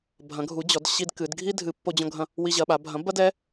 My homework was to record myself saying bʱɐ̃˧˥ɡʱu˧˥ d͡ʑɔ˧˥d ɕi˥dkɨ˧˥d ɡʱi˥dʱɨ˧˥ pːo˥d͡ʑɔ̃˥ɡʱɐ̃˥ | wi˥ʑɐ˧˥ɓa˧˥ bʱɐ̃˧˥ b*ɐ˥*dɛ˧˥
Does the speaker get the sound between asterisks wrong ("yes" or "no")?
no